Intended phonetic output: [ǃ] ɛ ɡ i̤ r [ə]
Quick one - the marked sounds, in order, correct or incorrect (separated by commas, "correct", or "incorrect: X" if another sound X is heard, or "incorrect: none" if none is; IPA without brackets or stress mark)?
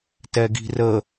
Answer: incorrect: t, correct